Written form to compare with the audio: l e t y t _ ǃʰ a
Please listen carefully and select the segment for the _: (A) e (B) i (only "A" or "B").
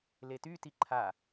B